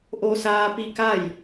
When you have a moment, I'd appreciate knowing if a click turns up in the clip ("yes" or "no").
no